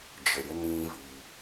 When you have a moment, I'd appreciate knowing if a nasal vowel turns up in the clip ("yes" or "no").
yes